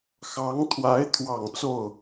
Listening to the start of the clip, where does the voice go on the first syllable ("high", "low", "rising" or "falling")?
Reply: rising